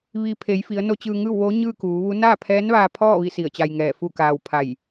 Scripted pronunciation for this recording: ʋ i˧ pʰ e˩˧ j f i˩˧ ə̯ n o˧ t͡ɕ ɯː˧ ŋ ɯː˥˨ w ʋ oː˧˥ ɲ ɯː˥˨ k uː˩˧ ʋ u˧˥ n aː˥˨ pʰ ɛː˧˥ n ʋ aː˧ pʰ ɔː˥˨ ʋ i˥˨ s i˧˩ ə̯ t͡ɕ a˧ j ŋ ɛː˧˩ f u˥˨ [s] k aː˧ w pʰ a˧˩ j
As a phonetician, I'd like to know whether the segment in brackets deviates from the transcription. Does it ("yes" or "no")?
yes